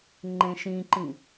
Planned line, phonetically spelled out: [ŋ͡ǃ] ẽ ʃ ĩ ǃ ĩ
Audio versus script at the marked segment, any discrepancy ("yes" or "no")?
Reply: no